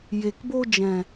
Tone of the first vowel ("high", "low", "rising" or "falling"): low